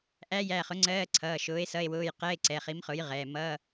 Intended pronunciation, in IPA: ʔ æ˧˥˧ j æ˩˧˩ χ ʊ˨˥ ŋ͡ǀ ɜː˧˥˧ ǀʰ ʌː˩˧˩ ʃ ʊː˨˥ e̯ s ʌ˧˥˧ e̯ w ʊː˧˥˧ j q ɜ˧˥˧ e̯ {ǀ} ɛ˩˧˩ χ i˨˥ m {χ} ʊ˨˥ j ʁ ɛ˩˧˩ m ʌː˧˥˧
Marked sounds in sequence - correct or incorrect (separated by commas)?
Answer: correct, correct